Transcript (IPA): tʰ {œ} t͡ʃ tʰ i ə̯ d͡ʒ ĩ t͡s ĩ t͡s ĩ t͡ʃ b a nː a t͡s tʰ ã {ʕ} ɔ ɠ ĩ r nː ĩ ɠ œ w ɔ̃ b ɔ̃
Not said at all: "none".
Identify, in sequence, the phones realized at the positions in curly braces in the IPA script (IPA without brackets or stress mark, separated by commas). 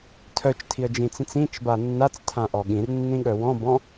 œ, ʔ